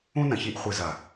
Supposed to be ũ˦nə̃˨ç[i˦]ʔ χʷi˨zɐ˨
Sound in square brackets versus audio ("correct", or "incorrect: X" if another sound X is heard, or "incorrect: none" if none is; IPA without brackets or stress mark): incorrect: i˧